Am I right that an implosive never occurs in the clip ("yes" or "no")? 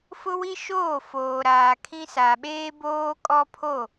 no